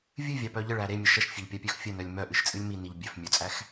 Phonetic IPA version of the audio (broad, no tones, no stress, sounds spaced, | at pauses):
vʲ ɨ vʲ ɑ p œ ʎ ə ɭ æ ɾ e mʲ ə ʃ ə ʃ fʲ e ʎ pʲ ɑ pʲ œ x fʲ ə n œ lʲ m œ ʔ ɨ ʃ t͡sʼ ɨ lʲ m i n i ʎ bʲ œ f mʲ œ t͡sʼ æ x